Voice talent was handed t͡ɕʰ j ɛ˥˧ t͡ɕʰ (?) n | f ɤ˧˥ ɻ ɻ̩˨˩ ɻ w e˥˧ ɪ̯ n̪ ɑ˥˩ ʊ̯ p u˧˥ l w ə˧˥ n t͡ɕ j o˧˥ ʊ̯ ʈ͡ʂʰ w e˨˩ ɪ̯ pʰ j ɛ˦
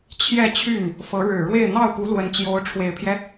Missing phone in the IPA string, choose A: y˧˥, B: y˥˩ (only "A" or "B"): B